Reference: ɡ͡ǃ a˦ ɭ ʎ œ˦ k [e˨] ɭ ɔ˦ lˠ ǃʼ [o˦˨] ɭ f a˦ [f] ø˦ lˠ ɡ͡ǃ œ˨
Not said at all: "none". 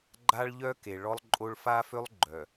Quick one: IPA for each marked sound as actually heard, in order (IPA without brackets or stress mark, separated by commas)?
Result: e˨, o˦, f